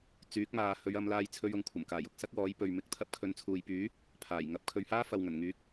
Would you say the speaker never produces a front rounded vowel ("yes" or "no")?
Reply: no